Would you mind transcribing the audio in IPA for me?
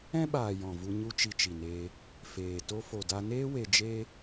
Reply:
ɛ̃˦ ɓ aː˨ j ɔ̃˨ v u˧ ɲ u˦ t͡ʃ i˧ t͡ʃ i˨ n eː˧ | f eː˨ t o˧ f o˨ d a˧ n eː˦ w e˧ d͡ʒ eː˦

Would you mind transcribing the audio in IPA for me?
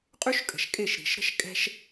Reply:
qʼ y˦ ʃ kʼ ə̤˨ ʃ kʼ e˦˨ ʃ ɾ i̤˨ ʃ ɾ ə̤˦ ʃ kʼ ɛ̤˦ ʃ

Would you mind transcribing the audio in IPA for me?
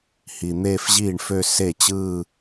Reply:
h i˨ n̪ eː˥˧ f ʑ iː˥˩ ɳ f ø˥˧ s e˥˩ t͡ɕ ɯː˥˧

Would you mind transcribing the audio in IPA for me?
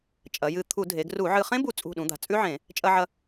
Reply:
t͡ʃʼ ɐ˩˧ j ɨ˧˩ t̪ʰ u˧˩˧ dʱ e˩˧ ɡ r u˧˩˧ ʕ ɨ˧˩ χ ẽ˦˥ b u˧˩ t͡sʼ ṳ˧˩ ɗ ũ˩˧ d̪ a̤˩˧ t͡sʼ ʉ˦˥ ʕ ẽ˧˩˧ | t͡ʃʼ ɐ˧ ʕ ɐ˧

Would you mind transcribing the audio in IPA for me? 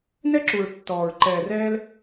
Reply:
n ɛ˦ ǁ u˨ ɹ tː ɔː˨ ɹ ǃ ɛː˨ r ɛː˧ l

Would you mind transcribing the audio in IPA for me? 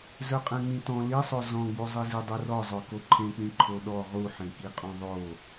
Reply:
z œ qʼ ɛ̃ ŋ͡m ĩ t ɔ̃ l i sˤ o z ɔ̃ ɡ͡b u zˤ i z i dˤ u r ɔ zˤ œ k o ǃʰ ẽ k͡p ĩ ǃʰ o ɗ ɔ ʁ u ħ ẽ k i qʼ õ ðˤ o

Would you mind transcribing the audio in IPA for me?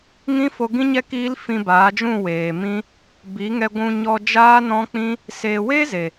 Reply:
ŋ ĩ˦ f o˧ ɡ ĩ˦ ɲ ɛ˦ k iː˦ l f ĩ˧ b aː˨˦ d͡ʒ ũ˦˨ w eː˨ m ĩ˦ | b i˨˦ ŋ ɛ˧ ɡʷ ũ˧ ɲ ɔ˧ d͡ʒ aː˦ n ɔ̃˦ k͡p ĩ˦ | s eː˨ w eː˦ z e˨

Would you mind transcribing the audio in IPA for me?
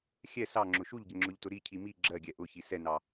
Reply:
xʲ ɛ s ɑ ŋ͡ǁ ʊ ʃ u ʎ ɟ ə ŋ͡ǁ ʊ ʎ t ʊ ɾ i cʰ i m i ɡ͡ǁ ɜ ɡʲ ɛ ʔ ʊ ç i s ɛ n ɑ

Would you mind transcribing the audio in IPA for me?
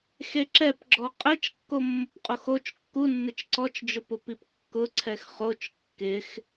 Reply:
x e ǁ ɛ p ɡ͡ǁ ɔ qʼ ɛ t͡ʃ kː o mː ʊ p qʼ o x o t͡ʃ kː u nː ɪ t͡ʃ ǀ ɔ t͡ʃ d͡ʒ ʊ p ʊ p i p kː ʊ ǀʰ ɛ x χ o t͡ʃ kː ɪ x

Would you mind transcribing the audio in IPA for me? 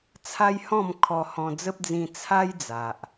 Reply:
t͡sʰ a˦ j h ɔ̃˥˧ m kʰ ɔ˧ h ɔ̃˧ d͡z ə˦ p̚ d͡z ĩ˧ t͡sʰ a˦ j d͡z a˨ ʔ

